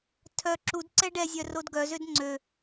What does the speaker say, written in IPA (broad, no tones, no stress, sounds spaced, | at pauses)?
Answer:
tʰ œ ǁ u d ǀ ɛ ɖ ɛ zʲ œ r o d ɡ œ z ø d ŋ͡ǀ ø